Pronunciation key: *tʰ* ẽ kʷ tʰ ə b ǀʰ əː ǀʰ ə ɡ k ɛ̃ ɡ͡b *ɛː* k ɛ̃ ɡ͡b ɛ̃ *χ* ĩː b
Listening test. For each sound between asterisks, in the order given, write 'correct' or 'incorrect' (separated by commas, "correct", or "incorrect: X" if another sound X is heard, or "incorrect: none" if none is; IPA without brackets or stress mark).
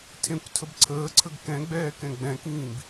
correct, correct, incorrect: k